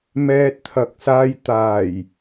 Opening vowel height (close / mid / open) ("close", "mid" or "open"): mid